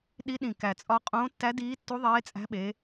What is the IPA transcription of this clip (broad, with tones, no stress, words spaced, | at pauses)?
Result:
ɗi˧˥ɗĩ˧˩ kæ˧˩t͡sʼɒ˧˥ qʼõː˧˥tːæ˧˥diː˧˥tːu˧˥ ðˤeː˧˥t͡sʼæ̤˧˥ ɓe˧˥